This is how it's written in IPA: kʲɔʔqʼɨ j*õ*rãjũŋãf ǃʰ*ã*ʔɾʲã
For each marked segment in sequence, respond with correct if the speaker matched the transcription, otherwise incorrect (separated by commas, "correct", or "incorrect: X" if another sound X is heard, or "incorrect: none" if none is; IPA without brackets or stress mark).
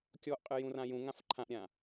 incorrect: ũ, correct